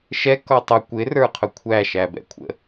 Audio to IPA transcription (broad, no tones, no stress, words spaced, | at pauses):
ʃɛ kɔtˤʌ kʷɪ rə˞qʰʊkʷʰæ ʃæbɛ̰kʷʰə̰